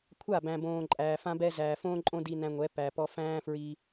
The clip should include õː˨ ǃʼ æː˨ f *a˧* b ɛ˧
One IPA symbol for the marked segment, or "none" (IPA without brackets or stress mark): ã˧